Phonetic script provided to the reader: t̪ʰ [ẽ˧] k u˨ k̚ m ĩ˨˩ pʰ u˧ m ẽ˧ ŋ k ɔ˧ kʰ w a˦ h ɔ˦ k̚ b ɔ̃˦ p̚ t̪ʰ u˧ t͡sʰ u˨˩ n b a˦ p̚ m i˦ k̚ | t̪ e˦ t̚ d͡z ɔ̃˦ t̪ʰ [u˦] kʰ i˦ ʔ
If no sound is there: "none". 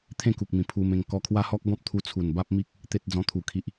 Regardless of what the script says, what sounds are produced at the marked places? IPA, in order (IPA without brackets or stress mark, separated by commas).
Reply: ẽ˥˧, u˧